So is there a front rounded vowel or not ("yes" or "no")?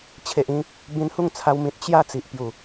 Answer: no